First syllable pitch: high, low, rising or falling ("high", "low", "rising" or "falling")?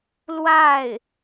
falling